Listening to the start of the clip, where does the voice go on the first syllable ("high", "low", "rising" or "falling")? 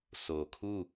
low